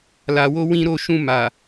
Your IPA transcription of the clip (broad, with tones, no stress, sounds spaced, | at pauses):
l a˨ w o˧ w ĩ˧ ɾ o˧ ʃ ũ˧ m a˨